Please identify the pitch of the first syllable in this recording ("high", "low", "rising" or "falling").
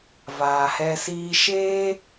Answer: low